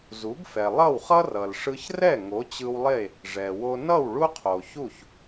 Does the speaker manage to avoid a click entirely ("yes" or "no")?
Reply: yes